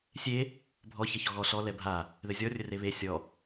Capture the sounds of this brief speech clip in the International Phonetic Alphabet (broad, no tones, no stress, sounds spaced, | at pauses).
sʲ e | bʱ ɔ ç ɐ ç ɔ ɣ ɔ ɬ ɔ l ɛ bʱ a | ð ɘ zʲ ɔ rʲ ɘ r e β e sʲ ɔ